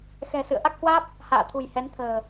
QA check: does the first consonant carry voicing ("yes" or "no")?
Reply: no